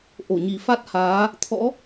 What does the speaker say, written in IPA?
ʔ o˧˩ ɲ i˨˩ f a˦˥ t̚ h aː˨˦ | t̪ʰ ɔ̰˧˥

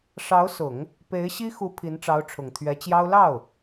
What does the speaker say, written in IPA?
ʂ ɑ˧˥ ʊ̯ s ʊ˨˩˦ ŋ | p e˧˥ ɪ̯ ɕ i˥ x u˧˥ pʰ i˧˥ n ʈ͡ʂ ɑ˧˥ ʊ̯ ʈ͡ʂʰ ʊ˨˩ ŋ t̪ʰ ɥ ɛ˧˥ t͡ɕ j ɑ˥ ʊ̯ l ɑ˥˩ ʊ̯

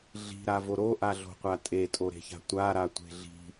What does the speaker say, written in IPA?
ɮ i̤ ɾ a v o ɾ o ʔ a ɮ o̤ qʷ a tʼ e tʼ o ɾ e̤ ç a̤ tʷ a ɾ a tʷ e̤ ɮ i̤

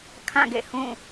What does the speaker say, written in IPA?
kʰ ã˦˨ ɡ ḛ˦˨ h ũ˦˨

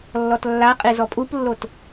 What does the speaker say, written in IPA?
lː ɔ t lː a qʼ i z ɔ pʼ u p lː o t

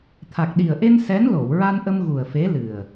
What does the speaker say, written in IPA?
t̪ʰ a˨˩ k̚ ɗ i˨˩ ə̯ ʔ e˧ n s ɛ˧˥ n l o˨˩˨ w ɹ a˧ n ʔ ə˧ m ɣ u˨˩ ə̯ f e˧˥ l ɨ˨˩ ə̯

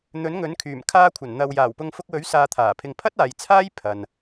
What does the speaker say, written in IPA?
n̪ ɵ˨˥ n ŋ ɵ˨˥ n kʰ yː˨˩ m kʰ aː˧ kʷʰ ɐ˨˩ n n̪ ɐ˨ w j aː˨˩ w p ʊ˧ ŋ f ʊ˧ k̚ w ɵ˨˥ ɥ s aː˧ t̪ʰ aː˨˩ pʰ ɪ˧ ŋ pʰ ɐ˥ t̚ aː˨ j t͡sʰ aː˥ j pʰ ɐ˨ n

